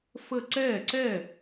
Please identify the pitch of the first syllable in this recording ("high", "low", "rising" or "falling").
falling